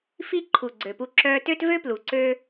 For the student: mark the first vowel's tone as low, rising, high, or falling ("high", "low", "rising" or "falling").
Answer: high